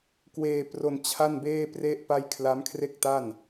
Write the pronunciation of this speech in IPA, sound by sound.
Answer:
k w eː˧ p r o˧ n t͡ɕʰ a˥˩ n b eː˥˩ p r e˥˩ ʔ p a˥˩ j kʰ l a˦˥ m kʰ r e˥˩ k̚ t a˥˩ n

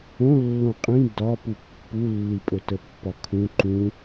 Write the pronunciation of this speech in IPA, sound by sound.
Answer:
õ lː õ qʼ ĩ d ɒ p u pː u lː i pʼ ɵ t ə pː ɒ kʰ ũ ǃ ũ

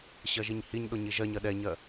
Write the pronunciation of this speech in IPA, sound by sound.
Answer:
ɕ ɜ ʒ i ɲ h i ɲ ɗ o ɲ i ʒ ɜ ɲ ɜ ɗ ɛ ɲ ɜ

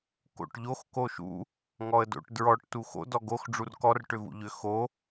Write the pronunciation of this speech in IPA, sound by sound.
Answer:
k o̰ ʈ ʎ o x k o ʃ ṵ | ŋ ɔ ə̯ d o̰ ʈ d ɹ ɔ ʈ t u x o̰ d ɔ ɡ o x ɖ͡ʐ u r k ɔ r ʈ ʏ v ṵ ʎ ʏ x o

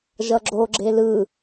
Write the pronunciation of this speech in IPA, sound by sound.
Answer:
ʒ ʌ ɡ͡ǁ o ɡ͡ǁ e l ɯ

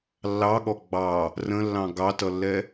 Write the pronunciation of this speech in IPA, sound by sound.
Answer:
lː ɑ ɠ ɔ ɡ͡b ɑ | r ə̃ lː ɑ̃ ɡ ɑ t ʌ lː ɛ

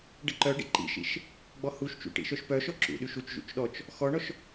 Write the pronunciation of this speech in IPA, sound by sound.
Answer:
ɖ ə ǃ œ ɖ ḭ ǃ ḭ ʃ ḭ ʃ | ɡ͡b ɔ h u ʃ t͡ʃ ṵ ʈ ḭ ʃ œ ʃ p œ ʃ ɔ ǁ ṵ ɗ y ʃ u t͡ʃ ʒ ṵ t͡ʃ ɗ ɔ t͡ʃ | x ɔ ɳ ɔ ʃ

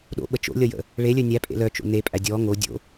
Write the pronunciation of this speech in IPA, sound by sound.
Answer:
ɗ o̰ ɓ ə t͡ʃ o̰ lʲ ʌ j ə̰ | ɭ e lʲ œ nʲ æ pʼ ḛ l œ t͡ʃ o̰ n e pʼ æ dʲ ɔ ŋ o dʲ o̰

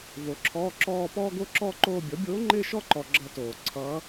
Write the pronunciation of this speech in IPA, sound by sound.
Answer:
v o˩˥ ǁʰ ɔː˧˥˧ ǁ ɔː˥˧ p ɔː˥ ɡ o˥ ǁ ɔː˥ ǃ oː˥˧ bʲ ɔ˩˥ bʲ oː˧˥ ŋ͡ǃ ɪː˥˧ ʃ ɔ˥˧ ǃ ɔ˨ ɡ͡ǁ ʌ˧˥ t oː˨ ǀʰ ʌː˧˥

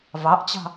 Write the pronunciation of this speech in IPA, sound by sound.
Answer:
v ɑ ʔ t͡ɕ ɑ̤

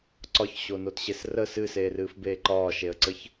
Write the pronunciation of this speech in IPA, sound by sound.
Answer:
ǀ ɒ ç ɕ o n o t ɕ e s r ə s ɨ s eː r ɨː f b eː ǃ ɒː ʃ e ə̯ ǀ ə ç

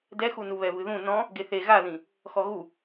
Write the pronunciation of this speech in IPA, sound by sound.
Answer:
d ɛ x u n u β ɛ v ɨ ð ũ n ɔ̃ | ɡ e θ e ɣ a ð ĩ | x ɔ ɣ u

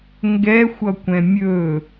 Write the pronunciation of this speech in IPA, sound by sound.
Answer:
ŋ ɡ ɛ xʷ ʌ kʷ ɛ̃ mʲ ɵ

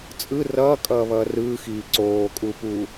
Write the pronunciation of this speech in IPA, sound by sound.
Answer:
t͡sʼ ɯ r ʌː kʼ ʌː β ʌː r ɯː x iː ǀ oː kʼ uː p uː

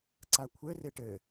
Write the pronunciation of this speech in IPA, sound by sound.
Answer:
ǀ a kʷʰ ɘ r e ʈ ɘ

